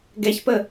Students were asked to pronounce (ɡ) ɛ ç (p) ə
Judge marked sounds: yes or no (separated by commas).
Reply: yes, yes